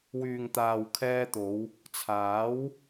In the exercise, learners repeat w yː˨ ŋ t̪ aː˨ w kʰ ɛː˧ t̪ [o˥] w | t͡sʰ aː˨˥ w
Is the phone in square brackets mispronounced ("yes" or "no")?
yes